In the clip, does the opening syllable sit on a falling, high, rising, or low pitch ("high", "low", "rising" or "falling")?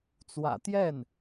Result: low